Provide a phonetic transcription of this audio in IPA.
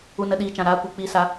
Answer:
u˦ n ə˦ ɗ iː˧ t͡ʃ ã˧ ɾ a˧ kʷ ɨ˧ k͡p iː˦ s a˦

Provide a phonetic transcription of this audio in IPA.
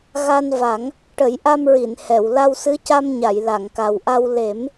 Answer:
ɣ a˧ n v a˨˩˦ ŋ | ʈ ə˨˩˦ j ʔ a˧ m ɹ i˨˩˨ n h ɛ˨˩˨ w l a˧ w s ɨ˧˥ c a˧ m ɲ a˨˩˨ j l a˨˩˨ ŋ k a˨˩ w ʔ a˧ w l e˨˩˦ m

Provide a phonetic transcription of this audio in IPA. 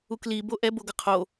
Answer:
u k l i b o ʔ ɛ b o ɡ ʌ qʰ o

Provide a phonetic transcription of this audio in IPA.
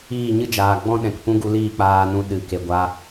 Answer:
iː˦˨ ɲ ɨ˦ d͡ʒ aː˨ ɡ͡b ɔ̃˦ ɗ ɛ̃˨ k p ũ˦ ɡ u˧ l iː˦˨ k͡p aː˧ n ũ˧ ɗ ɨ˨ k e˨ ɡʷ a˧

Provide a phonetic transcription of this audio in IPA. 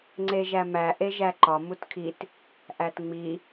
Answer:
ŋ͡ǀ e ʒ æ m æ ʔ e ʒ æ ǃ ɒ m u t kʰ i t | ʔ æ t ŋ͡m i

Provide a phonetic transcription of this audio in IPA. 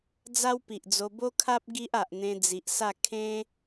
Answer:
d͡z a˦ w p i˨ ʔ d͡z o˧ b o˦ kʰ a˦ p̚ ɡ i˦ ʔ a˨ ʔ n̪ ẽ˧ d͡z i˨ ʔ s a˥˧ kʰ ẽ˦

